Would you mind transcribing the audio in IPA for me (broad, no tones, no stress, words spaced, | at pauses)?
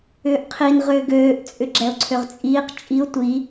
ʏːʔqʰin ʁʏːɡøːʔ t͡sʼʏɡ͡ǁɛʊ̯ǀʰøʁt͡sʼiːq t͡ʃʼiʊ̯ tʷi